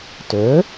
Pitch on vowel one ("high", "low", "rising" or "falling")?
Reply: rising